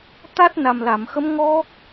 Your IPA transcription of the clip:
t̪ a˦˥ t̚ n a˨˩ m l a˨˩˨ m x ə˧˥ m ŋ ɔ˦˥ k̚

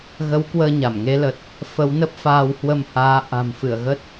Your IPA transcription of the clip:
ɣ ə˨˦ w k w əː˧ ɲ a˧˩ m ŋ e˨˦ l ə˨˩ t̚ | f ə˨˦ w n ə˦˥ p̚ f aː˧ w h w ə˧ m h aː˨˦ ʔ a̤˨˩ m f ɨ˧˩ ə̯ ɣ ə˦˥ t̚

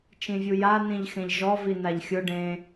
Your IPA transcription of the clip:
t͡ʃ ĩ vʲ u j a n ĩ ʎ x ẽ ʎ ʒ ɔ v i n a ʎ xʲ ʊ ɖ ẽ

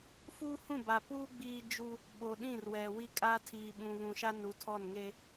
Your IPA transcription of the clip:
f uː˦ h ũ˦˨ b a˨ p uː˦ ɡ͡b iː˦ d͡ʒ u˦ | ɓ o˨ ɗ ĩ˦˨ r w ɛ˨ w i˦ kʼ a˦ tʰ iː˨ ɓ ũ˨ β ũ˨ ʃ a˦ n u˨˦ tʰ ɔ˦˨ n ŋ eː˦

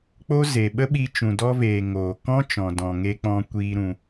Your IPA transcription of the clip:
k͡p o˦ z e˨ ɓ ə˦ ɓ i˧ t͡ʃ ũ˨ d ɔ˧ v eː˨ ŋ oː˨ k ɔ̃˦ t͡ʃ ɔ̃˨ d ɔ̃˨ ŋ e˧ k͡p ɔ̃˧ kʷ iː˧ ɾ ũ˧

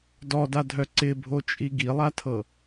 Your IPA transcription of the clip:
d ɔ d a dʱ œ ǀ ɪ bʱ o t͡ʃʼ i ɡ i lˠ a tʰ ɤ

